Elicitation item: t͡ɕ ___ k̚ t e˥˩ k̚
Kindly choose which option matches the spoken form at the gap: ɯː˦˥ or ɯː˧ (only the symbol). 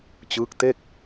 ɯː˦˥